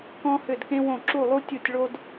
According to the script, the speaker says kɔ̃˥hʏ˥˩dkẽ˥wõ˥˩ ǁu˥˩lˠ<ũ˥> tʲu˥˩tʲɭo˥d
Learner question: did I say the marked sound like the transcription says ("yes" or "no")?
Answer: no